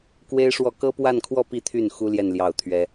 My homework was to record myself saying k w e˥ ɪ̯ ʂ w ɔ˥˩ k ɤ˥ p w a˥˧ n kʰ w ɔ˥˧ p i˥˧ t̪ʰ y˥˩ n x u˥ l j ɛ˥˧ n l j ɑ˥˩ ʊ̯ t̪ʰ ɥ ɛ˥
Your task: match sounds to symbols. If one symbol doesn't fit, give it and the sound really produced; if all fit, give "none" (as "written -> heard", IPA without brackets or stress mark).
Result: none